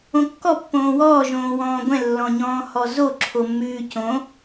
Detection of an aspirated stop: present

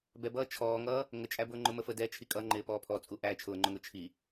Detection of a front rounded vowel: absent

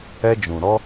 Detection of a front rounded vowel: absent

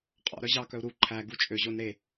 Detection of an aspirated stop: present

